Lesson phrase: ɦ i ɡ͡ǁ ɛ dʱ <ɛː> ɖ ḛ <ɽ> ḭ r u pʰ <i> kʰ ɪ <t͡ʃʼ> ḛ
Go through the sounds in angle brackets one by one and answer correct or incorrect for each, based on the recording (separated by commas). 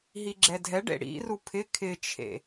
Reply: incorrect, correct, incorrect, incorrect